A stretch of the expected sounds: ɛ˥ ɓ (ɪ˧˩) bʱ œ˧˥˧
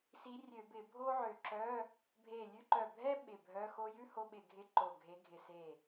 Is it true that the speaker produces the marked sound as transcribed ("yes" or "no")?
yes